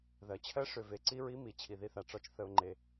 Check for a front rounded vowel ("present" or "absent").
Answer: present